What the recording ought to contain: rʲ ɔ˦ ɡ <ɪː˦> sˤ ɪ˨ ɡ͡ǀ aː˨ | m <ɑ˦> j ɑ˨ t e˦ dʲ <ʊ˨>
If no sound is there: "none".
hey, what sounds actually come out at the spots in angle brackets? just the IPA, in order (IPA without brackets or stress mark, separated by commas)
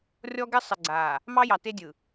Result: ɪ˦, ɑ˦, ɯ˨